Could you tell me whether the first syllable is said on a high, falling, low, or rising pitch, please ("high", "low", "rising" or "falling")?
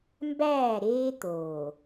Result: falling